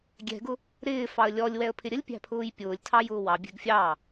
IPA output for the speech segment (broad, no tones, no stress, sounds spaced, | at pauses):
ɡʲ ɛ̤ ɡ ʊ | ɾ ɪː f ɑ ə̯ lʲ ɔ lʲ w ɛ ə̯ pʰ ɪ ɾʲ ə lʲ pʲ æ̤ pʰ ʊː j pʲ ʊː lʲ tʰ ɑ j ʊː w ɑ bʲ ɛ̤ ɡ fʲ ɑ